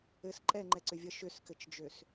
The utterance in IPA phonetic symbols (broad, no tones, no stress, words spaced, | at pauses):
ɘs ǃʼɛŋ͡ǃɛǀʏvʲʌ ʃʏskɘt͡ʃd͡ʒøs